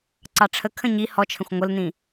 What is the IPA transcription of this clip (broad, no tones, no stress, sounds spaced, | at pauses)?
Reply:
ǀ ɑ ʈ͡ʂʰ ə kʰ ə̃ ɲ i h ɔ t͡ʃʰ ə̃ xʷ ŋʷ ə l n ĩ